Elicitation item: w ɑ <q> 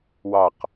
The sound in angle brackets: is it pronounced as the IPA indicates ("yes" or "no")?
yes